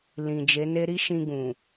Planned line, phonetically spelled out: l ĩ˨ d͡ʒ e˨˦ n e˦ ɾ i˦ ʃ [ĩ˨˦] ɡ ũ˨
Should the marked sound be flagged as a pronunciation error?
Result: yes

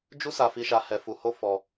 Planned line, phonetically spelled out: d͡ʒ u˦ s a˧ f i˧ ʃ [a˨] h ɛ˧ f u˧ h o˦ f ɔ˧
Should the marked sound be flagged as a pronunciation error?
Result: yes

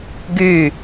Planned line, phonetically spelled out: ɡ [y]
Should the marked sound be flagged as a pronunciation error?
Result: no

